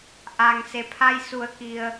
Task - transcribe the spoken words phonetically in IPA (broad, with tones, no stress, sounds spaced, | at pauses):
ʔ aː˩ ŋ s e˩ pʰ a˧ j s u˩˧ ə̯ k i˩ ə̯